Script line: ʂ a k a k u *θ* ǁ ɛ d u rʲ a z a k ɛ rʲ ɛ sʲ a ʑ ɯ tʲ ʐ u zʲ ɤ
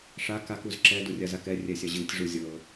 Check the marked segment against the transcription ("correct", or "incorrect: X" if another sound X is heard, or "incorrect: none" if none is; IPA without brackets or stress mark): incorrect: z